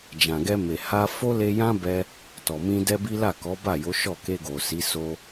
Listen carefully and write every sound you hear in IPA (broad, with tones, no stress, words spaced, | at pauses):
d͡ʒã˨ɡɛ˧me˨ ha˧ fo˦le˧jã˦ bɛ˧ | tɔ˨mĩ˧ dɛ˦bi˦ la˦˨kɔ˨˦ba˦˨jo˨˦ ʃɔ˦˨ke˧ɡo˨si˨˦ so˦